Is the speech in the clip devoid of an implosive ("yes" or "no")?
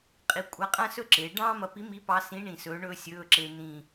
yes